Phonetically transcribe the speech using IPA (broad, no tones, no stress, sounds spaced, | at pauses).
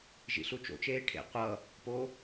ʒ ḭ ɬ u t͡ʃ o̰ t͡ʃ eː ʈʰ ḛ qʷ ʌ | p o